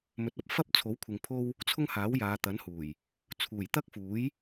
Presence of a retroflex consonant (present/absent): absent